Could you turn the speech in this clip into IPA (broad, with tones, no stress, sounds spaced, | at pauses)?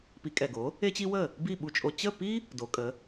p i˩˥ kʼ ɛ˩ ɡ o˩˥ | e˥ t͡ɕ i˥ w ə˥˩ | b i˥˩ ɓ u˧ t͡ʃʼ o˧ t͡ɕ ə˥˩ p i˥ | d o˩˥ kʼ ə˩˥